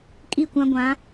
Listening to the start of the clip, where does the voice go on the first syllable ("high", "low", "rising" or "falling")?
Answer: falling